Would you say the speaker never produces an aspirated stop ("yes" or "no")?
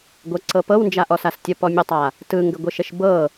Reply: yes